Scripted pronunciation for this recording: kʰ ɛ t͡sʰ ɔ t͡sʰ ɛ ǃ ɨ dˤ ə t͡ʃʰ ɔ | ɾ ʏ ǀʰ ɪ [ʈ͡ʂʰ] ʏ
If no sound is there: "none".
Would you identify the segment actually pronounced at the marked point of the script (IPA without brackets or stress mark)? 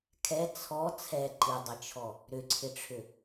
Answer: ʈ͡ʂʰ